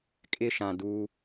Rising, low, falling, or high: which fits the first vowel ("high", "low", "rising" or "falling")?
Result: high